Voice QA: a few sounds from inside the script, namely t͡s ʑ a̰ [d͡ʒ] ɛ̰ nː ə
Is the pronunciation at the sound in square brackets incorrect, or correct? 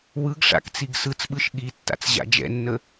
correct